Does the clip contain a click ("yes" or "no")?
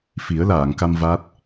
no